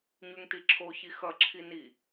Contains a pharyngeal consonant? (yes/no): no